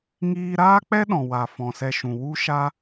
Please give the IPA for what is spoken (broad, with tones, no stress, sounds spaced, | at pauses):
ŋ iː˧ ɾ aː˦ k͡p ɛ˦ ɗ ɔ̃˨ w a˨ f ɔ̃˨ s ɛ˧ ʃ ũ˨ w u˦ ʃ a˦